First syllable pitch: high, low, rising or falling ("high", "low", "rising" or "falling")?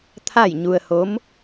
falling